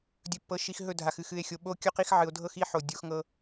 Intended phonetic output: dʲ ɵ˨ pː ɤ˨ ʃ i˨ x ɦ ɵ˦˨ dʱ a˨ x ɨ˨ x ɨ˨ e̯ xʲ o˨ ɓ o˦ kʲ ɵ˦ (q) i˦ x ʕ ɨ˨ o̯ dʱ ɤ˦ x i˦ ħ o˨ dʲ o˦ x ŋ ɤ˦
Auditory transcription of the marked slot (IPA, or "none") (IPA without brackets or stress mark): q